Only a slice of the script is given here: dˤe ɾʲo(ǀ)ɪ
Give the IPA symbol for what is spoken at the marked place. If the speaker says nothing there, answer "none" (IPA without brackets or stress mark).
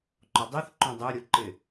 ǃ